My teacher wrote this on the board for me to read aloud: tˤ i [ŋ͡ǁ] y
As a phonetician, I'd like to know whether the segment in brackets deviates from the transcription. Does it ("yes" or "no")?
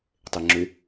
no